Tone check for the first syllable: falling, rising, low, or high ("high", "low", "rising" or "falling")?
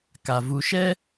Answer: low